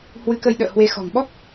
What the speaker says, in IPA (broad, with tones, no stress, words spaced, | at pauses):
hwɨ˨˦kə˧j ɗə̰ː˧˨ hwe˨˦ xɔ̤˨˩ŋ ɓɔ˦˥k̚